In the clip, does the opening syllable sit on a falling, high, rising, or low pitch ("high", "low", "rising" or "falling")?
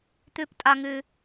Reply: high